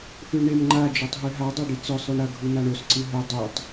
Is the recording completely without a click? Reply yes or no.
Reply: no